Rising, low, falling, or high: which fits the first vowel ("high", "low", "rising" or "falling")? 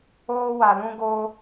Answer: high